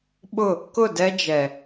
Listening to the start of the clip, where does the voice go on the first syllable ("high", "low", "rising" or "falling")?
falling